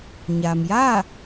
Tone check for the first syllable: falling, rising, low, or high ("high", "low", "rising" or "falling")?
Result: low